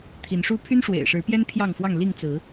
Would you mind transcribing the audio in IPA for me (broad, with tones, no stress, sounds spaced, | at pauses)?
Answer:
t̪ʰ i˨˦ n ʂ u˦ pʰ y˦ n ʂ w ḛ˨˩ ɪ̯ ʂ ɻ̩˨˦ p j ɛ˦ n pʰ j ɑ˥˨ ŋ f w ɑ˥˨ ŋ l i˥˨ ŋ t͡s ɹ̩˨˦